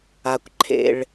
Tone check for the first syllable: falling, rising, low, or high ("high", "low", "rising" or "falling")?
low